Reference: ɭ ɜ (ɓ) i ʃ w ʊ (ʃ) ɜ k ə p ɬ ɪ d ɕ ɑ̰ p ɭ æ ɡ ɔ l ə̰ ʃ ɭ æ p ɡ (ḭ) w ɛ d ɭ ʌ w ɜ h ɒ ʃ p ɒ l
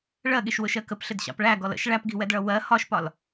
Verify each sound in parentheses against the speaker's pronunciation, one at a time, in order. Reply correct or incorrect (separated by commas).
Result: incorrect, correct, incorrect